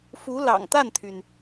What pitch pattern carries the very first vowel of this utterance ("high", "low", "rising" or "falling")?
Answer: rising